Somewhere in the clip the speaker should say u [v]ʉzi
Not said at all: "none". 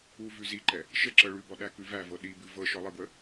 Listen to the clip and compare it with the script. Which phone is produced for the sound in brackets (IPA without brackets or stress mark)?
v